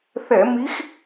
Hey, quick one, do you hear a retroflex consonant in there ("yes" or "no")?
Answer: no